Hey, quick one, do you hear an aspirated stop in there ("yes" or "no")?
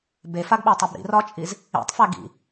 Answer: no